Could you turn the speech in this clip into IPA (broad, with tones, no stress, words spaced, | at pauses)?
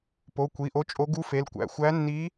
po˩˧˩ kʷi˩˧˩ʔo˧˥t͡ʃʼo˧˥ ɡu˧˥fe˩˧˩lkʷæ̰˩˧˩ xʷæ˧˥nːi˧˥